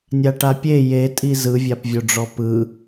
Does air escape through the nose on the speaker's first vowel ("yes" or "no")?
no